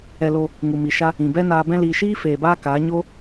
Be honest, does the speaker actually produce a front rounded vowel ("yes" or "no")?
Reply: no